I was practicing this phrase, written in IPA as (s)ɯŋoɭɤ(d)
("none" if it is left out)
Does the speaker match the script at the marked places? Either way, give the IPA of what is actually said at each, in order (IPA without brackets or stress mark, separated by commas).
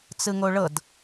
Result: t͡s, d